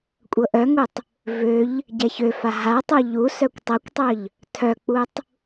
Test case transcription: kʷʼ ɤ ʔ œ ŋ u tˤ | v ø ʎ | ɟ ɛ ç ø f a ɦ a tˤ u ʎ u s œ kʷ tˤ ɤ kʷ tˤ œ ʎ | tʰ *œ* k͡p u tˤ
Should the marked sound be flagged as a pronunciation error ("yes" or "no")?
no